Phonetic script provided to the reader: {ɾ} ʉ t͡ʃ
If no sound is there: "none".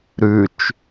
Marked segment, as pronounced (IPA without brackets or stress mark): ɾ